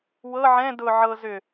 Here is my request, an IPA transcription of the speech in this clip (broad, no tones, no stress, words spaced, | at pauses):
wɤ ʕɛ̃ dʊ ʕɤ zʏ